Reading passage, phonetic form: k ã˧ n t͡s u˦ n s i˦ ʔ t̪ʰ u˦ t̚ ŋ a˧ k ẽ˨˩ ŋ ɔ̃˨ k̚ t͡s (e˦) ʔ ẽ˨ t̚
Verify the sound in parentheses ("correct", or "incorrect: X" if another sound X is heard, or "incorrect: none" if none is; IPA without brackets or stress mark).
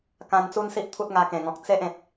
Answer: correct